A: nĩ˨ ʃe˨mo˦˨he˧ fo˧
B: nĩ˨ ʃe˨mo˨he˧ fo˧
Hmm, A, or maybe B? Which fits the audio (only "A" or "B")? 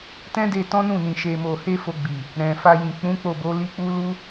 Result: B